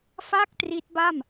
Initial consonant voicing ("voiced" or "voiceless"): voiceless